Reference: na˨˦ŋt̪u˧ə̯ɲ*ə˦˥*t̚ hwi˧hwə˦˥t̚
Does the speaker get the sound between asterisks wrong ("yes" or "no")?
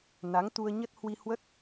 no